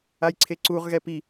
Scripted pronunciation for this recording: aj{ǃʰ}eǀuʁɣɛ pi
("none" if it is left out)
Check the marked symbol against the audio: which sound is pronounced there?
ǀʰ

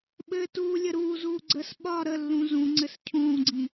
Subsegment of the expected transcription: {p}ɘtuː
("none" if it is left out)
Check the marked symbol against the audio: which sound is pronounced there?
ɓ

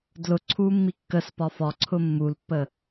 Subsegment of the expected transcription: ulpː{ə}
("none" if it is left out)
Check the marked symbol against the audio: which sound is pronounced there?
ə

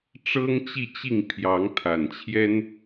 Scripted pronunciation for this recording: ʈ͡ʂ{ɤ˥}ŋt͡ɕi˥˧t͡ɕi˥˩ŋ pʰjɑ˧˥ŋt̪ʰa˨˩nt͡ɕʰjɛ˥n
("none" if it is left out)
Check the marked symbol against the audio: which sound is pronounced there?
ɤ˥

